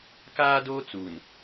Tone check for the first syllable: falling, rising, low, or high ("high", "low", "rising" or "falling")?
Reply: high